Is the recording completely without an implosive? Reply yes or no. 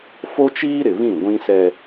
yes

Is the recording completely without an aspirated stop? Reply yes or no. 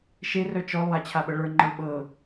no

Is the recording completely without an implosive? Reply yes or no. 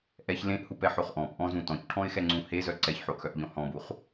yes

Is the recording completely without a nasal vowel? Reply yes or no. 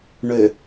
yes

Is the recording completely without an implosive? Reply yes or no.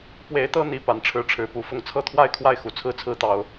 yes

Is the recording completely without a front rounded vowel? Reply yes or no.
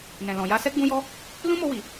yes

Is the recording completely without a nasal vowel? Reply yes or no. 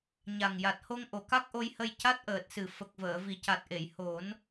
yes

